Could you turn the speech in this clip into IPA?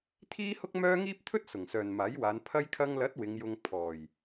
t̪ʰiː˥hʊ˥k̚mœː˥ ŋiː˥p̚t̪ʰɵ˥t̚ sʊ˨˩ŋsœː˨nmaː˨˥jwaː˨˧n pʰɐ˧jkʰɐ˧ŋlɐ˨˥t̚ wɪ˨˧ŋjʊ˧ŋ pʰɔː˨˩j

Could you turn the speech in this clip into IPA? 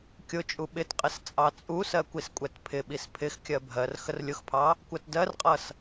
kʲʊt͡ʃʼu ɓɪtqʼɪs t͡sʼɑt͡sʼusɜ kʷiskʷʼɛtpʰɪɓis pʰɪxkʲɜ bʱɜr xərlʲʊxpʰɑ | kʷɜtdɜrqʼʌs

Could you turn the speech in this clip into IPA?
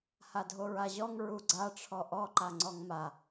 hadʱoɹaʑɔŋ ɹuɡ͡ǀaʈ͡ʂʰɔ ʔɔ ǃaŋ͡ǀɔŋma

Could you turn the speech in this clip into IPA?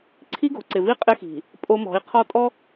ǀʰi˦ɡo̤˨ǀɪ˨vi˦ qʼɪ˦xi̤˨ | pʼo˦mɔ̤˨˦i̯ qʰɔ˦tʼɔ˦

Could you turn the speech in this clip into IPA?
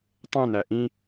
tˤẽnæ ʔĩ

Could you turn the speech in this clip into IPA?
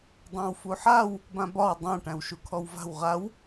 dˤãwfuħaw | bãbɒw dˤã ʈæ̃wʃukʰɔwva̤w ʁaw

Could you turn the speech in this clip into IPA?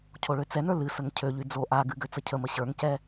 cʰoɭøt͡sɛnə˞ lɨsəŋ cʰøʎy d͡zo ʔaɡɨ ɡøt͡səcʰəmə ɕə˞ŋcɛ

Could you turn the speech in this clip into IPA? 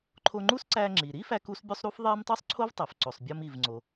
ǃʰo˧ŋ͡ǃu˥sǀæ˧ ŋ͡ǁi˩ ɾi˥fæ˧k u˥sbʲu˥sˤɾu˥f ðˤe˥m tˤu˥sˤǀʰo˥vtˤe˩f ǀo˩sˤbʲɒ˧mi˩vŋ͡ǀo˩

